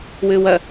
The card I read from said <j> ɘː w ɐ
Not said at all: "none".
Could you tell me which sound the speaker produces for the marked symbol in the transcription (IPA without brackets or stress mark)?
w